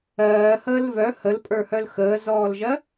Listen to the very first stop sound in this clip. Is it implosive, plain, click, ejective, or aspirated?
ejective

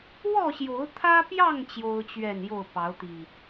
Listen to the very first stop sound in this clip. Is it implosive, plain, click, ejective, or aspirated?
aspirated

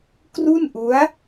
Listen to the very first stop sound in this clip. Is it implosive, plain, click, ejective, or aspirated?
plain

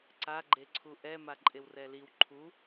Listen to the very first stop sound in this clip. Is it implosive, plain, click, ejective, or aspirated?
click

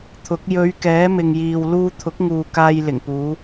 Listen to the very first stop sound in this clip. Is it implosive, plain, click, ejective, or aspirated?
aspirated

